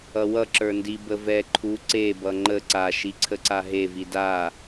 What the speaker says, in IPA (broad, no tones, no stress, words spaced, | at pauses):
ʌwʌ ǁə˞ndi bəvɛ ǃʰu ǀebʌ ŋ͡ǃə ǀaʃi ǀʰəǀaɦevi da